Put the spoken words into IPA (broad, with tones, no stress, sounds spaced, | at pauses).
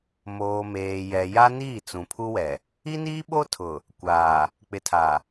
m oː˨ m eː˨ j ɛ˨ j a˦ n iː˦˨ t͡s ũ˨ pʰ u˦ w ɛ˨ | i˦ n iː˦ ɓ o˦ tʰ ʊ˨ | kʷ aː˨ | k͡p ɪ˨ tʰ a˨